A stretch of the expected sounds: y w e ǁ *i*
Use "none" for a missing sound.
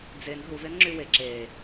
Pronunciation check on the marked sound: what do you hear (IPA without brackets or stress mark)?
e